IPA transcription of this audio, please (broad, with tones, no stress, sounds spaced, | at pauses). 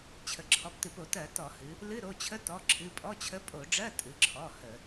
t͡ɕʰ ə˩˧ ǁʰ ɔ˩˧˩ p t ɨ˧˩˧ p o˧˩˧ t ɜ˧˩˧ t ɔ˧˩˧ h ɨ˩˧ | l ɨ˧˥˧ ɾ o˩˧˩ t͡ɕʰ ə˧˥˧ t ɔ˩˧˩ ǁʰ ɨ˩˧˩ pʼ ɔ˧˥˧ t͡ɕʰ ə˧˥˧ pʼ o˧˩˧ ɖ͡ʐ ɜ˧˥˧ tʼ ɨ˩˧ ǁʰ ɔ˩˧˩ h ə˧˩˧